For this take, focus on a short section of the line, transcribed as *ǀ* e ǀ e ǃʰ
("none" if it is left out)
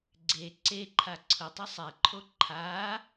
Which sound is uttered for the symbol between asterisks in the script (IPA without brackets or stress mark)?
ɡ͡ǀ